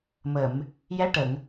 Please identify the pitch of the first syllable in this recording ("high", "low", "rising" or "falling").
low